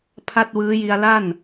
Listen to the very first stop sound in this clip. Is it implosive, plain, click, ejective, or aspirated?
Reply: aspirated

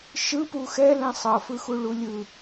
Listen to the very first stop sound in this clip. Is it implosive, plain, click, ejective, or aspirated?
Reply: plain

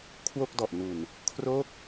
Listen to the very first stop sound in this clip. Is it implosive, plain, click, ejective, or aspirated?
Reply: aspirated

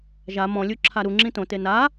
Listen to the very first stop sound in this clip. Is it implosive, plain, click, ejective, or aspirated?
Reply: click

